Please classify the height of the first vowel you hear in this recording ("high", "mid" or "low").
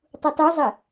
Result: high